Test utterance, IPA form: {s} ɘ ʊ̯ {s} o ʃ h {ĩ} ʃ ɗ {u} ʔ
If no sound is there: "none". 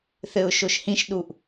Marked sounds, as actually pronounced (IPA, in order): θ, ʃ, ĩ, u

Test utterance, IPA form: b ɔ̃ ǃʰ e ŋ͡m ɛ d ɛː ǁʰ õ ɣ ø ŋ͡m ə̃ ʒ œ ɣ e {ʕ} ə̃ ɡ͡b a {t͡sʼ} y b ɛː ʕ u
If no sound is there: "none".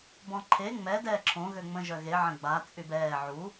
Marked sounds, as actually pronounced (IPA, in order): ʕ, t͡sʼ

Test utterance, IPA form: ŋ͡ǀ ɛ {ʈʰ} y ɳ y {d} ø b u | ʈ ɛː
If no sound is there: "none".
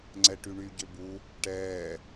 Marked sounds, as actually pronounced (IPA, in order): ʈ, ɟ

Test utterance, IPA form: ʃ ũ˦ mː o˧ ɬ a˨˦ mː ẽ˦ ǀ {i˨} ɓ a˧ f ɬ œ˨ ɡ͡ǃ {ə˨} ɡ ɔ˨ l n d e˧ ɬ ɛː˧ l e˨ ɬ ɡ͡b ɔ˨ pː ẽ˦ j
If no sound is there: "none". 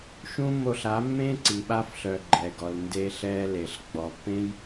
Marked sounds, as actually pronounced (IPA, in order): i˨, ɛ˨

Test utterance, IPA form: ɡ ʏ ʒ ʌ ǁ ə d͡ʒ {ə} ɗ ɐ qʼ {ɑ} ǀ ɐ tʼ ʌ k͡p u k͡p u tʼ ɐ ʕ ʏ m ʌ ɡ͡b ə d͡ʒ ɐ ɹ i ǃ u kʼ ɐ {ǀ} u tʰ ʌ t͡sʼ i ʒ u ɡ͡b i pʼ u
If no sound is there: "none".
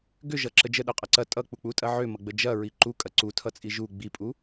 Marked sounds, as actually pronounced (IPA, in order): ə, ɐ, ǀ

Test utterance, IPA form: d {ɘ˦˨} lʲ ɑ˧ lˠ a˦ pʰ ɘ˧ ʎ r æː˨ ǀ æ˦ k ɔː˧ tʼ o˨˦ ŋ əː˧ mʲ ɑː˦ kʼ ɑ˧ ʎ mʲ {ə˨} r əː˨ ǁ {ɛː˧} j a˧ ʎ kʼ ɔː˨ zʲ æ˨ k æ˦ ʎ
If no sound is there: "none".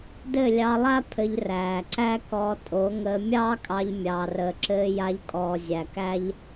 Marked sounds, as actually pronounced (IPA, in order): ɘ˦˨, ɑ˨, ɘː˧

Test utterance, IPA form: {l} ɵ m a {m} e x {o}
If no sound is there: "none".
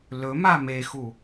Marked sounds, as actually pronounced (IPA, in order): l, m, u

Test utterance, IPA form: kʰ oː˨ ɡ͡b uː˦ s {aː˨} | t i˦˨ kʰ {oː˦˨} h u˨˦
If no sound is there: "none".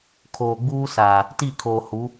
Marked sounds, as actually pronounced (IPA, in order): aː˨, oː˨

